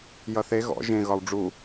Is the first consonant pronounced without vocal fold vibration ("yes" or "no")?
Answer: no